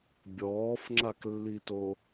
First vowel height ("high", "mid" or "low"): mid